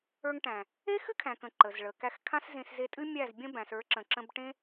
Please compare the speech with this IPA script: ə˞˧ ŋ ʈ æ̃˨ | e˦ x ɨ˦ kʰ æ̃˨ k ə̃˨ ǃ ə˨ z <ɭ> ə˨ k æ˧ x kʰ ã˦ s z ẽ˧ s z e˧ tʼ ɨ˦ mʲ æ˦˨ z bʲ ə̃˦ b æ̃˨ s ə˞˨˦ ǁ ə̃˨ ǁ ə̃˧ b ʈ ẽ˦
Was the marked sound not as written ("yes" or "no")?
no